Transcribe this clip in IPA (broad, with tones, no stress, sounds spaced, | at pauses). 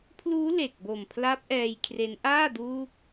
pʰ l uː˦˥ l e˨˩ k̚ b o˨˩ m pʰ l a˦˥ p̚ ʔ ɛː˧ j kʰ r e˦˥ n ʔ aː˥˩ d uː˦˥ k̚